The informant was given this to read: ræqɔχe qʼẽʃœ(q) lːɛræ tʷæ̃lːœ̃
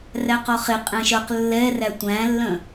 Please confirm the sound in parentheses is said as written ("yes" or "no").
yes